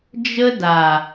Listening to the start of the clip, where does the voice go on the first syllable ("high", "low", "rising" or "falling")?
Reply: high